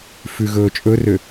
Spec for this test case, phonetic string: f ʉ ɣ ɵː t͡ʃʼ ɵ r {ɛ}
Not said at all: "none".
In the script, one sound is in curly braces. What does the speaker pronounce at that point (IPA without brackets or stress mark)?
ø